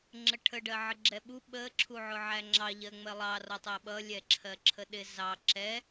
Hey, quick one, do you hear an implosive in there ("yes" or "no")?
yes